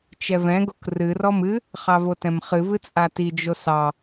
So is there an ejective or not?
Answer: yes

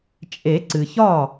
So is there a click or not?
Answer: yes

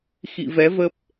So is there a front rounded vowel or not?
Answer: no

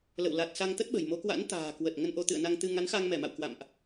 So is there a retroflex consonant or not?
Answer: no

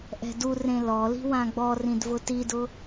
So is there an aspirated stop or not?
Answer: no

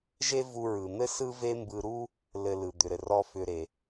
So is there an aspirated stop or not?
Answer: no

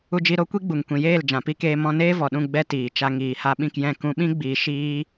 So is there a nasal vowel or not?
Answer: yes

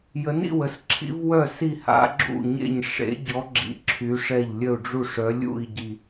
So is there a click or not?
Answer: yes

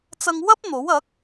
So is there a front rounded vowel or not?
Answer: no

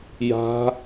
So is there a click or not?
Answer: no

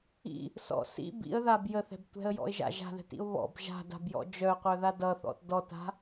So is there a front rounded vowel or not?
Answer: yes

